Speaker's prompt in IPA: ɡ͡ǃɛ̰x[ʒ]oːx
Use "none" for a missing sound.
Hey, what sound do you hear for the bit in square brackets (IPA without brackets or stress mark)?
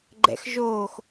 ʒ